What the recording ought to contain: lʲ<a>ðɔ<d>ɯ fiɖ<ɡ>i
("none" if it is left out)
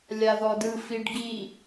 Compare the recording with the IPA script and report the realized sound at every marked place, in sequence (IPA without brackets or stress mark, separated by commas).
a, d, ɡ